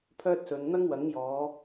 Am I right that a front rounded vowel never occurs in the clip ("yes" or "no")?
no